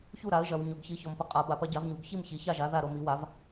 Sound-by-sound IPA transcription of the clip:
ç u˥˩ ɾ a˩˥ ə̯ ʒ ɐ˩˧ w ɲ o˩˧ ɡ ç i˩˥ ç ɔ˩˧ m p ə˩˧ qʼ a˩˥ b a˩˥ p ɐ˩˥ ɟ a˩˥ v ɲ u˩˧ ɡ ç i˥˩ m ç i˩˧ ç a˥˩ ʒ a˩˥ ð a˥˩ ɾ o˥˩ m i˩˥ w a˩˥ v

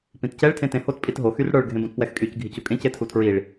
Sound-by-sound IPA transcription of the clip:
p ĩ t c ɛ ɭ tʰ ẽ t ẽ h o t pʼ i t ɦ o x y r ɽ ə˞ ɭ ɡʱ ẽ b õ t p w ɛ x kʼ y c ɡʱ i c u kʼ ẽ c e tʰ u tʰ ɹ i ɭ

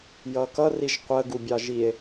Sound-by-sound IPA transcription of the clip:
j ʌ k ʌ r i ʒ qʷ ə ɡ u bʲ ɑ ʒ i e̯

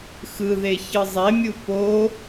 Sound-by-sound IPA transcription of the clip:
x ɯ ð e ç ɯ zˤ e mʲ u p o

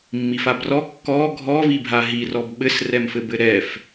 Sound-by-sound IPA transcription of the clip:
mː i f a b r ɔ kː ɔ ɡʱ ɔ v i bʱ a ɦ i r ɔ b ɓ ɘ s r ɛ m f ɘ b ɘ ɾ ɛ f

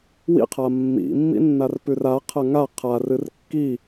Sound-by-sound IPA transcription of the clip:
w ḭ qʰ a mː ḭ mː ḭ nː a r p ʉ r a qʰ ɐ ŋ a qʰ a r ɨ r kː i

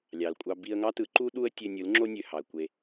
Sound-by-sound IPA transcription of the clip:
lʲ ɑ˨ l kʷʼ ɑ˧ b i˧ ə̯ ŋ ɑ˦ t ɯ˨˦ ǃ u˦ ɗ u˦ ə̯ tʲ ø˧ nʲ ɯ˨˦ l ŋ͡ǁ o˦ nʲ ø˨ h ɑ˨ ə̯ kʷ e˧

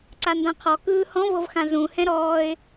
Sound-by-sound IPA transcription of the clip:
ǀ a n d ã qʰ ɔ k ɯː h ɔ̃ v ɤ v x ã z ũ h ɛ̃ ɾ ɔː ɪ̯

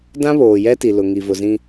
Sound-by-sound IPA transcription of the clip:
d ã˦ β oː˨ j ɛ˦ t i˨ l ʊ˨ ŋ i˨ v ʊ˨ z ĩ˦

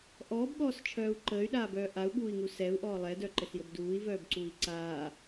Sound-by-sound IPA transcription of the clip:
ʔ ɔː b ɠ ɔː s t͡ʃʰ œː u̯ ǃ əː y̯ ɗ aː b œː ʔ a u̯ ɠ uː i̯ ŋ u s ɛ u̯ ʔ ɔː lˠ ɛ d œ ǃ ɘ s j ə b d uː i̯ v œː b ǀ u i̯ ǀ aː

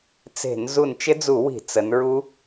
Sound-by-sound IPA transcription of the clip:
t͡s e̤˧˩˧ n z u˧˩ n t͡ʃ ɪ˦˥ d͡z u˧˩˧ w i̤˧˩˧ t͡s ə˩˧ n ɹ u˦˥

